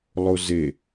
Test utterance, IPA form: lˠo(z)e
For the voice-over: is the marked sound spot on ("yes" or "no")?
yes